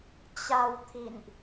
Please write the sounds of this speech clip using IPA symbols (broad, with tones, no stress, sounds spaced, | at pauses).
t͡ɕ a˧ w t̪ʰ ḭ˧˨ n ʔ